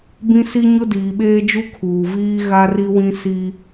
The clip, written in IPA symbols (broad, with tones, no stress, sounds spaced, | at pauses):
b ĩ˦ s i˦ ɲ ʊ˦ d iː˨ ɓ eː˦ d͡ʒ u˦ kʰ uː˨ v iː˦ ɣ a˦ r i˦ w ĩ˦ s i˦